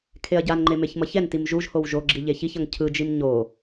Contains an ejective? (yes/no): no